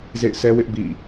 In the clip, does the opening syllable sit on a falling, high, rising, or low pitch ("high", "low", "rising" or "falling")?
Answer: falling